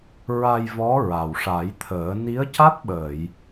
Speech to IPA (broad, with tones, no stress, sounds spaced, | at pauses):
ɹ a˧ j v ɔ˧˥ ɹ a˨˩ w ʂ a˨˩˦ j t̪ʰ əː˨˩˦ n i˧˥ ə̯ c a˦˥ t̚ ɓ əː˨˩˨ j